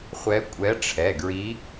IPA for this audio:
χʷ ɛ˧˥ kʷʼ ɛ˧˥ ʈ͡ʂʰ ɛ˩˧˩ ɡ ɹ i˧˥

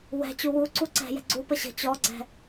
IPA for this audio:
w ɛ̤ t͡ɕ u w u ǀ u ǀ ɛ̤ j ɛ̤ ɡ͡ǀ u p ə ɕ ə̤ t͡ɕ ɔ ɡ͡ǀ ɛ̤

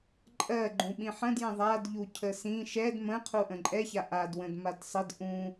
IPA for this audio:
ǃʼ ɜ ɡ͡ǃ ũ ɓ ĩ ħ ə̃ d j ə̃ ðˤ a d ʎ u cʰ ə s ĩ ʃ ɛ d m ə̃ qʰ u ʔ ə̃ ǃʼ ɛ ç a ʔ a d w ə̃ d m a d sˤ ə d ʔ ũ

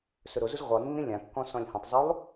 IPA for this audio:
s ɵ ɾ o z u z ʁʷ e lˠ nː ĩ lʲ ã kː ɔ̃ s ɔ̃ lʲ h ũ tˤ zˤ u lˠ

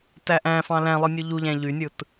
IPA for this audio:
t æ ʔ æ̃ f ɑ̃ l æ̃ lˠ ɯ nʲ u ʎ u ʎ æ̃ ʎ y nʲ ɯ t

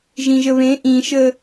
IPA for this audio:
ʒ ĩ ʒ ə β ẽ ʔ ĩ ʃ ə

